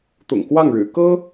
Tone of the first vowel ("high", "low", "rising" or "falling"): low